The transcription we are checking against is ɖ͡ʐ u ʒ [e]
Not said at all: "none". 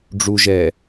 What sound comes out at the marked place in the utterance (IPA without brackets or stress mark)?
ɛ